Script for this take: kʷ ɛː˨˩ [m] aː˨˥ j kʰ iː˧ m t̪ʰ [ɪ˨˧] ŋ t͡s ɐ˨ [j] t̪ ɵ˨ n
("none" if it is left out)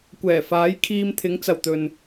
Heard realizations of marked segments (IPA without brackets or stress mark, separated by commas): f, ɪ˨˥, w